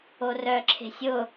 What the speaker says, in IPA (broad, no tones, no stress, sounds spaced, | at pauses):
o r œ ǁʰ e̤ sʲ ʊ